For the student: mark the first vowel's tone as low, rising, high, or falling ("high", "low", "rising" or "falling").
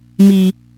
low